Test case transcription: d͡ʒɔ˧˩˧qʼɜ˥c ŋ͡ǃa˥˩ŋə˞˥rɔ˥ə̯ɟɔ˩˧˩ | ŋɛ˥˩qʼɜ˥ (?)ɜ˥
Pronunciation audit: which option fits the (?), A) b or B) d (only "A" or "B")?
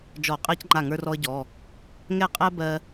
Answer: A